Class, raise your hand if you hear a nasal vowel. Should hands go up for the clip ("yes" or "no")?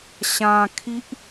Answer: yes